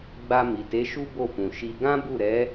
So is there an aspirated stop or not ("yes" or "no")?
no